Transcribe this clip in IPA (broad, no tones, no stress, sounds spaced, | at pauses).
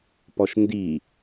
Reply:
p ɔ ʃ n d i